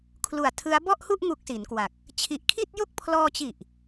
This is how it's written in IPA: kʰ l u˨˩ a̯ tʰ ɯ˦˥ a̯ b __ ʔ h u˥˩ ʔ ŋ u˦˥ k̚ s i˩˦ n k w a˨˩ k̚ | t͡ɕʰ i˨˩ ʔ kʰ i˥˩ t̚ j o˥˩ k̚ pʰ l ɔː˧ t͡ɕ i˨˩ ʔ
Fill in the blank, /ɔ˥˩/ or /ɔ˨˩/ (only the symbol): ɔ˥˩